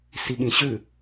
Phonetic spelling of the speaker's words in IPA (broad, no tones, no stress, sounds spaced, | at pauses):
s i ɠ ĩ ɕ ʉ